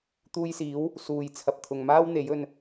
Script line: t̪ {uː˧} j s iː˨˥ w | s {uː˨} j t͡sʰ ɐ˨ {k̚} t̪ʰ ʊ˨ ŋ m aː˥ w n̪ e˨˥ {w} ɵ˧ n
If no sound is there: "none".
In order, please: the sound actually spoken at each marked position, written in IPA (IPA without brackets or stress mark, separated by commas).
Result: uː˧, uː˨, p̚, j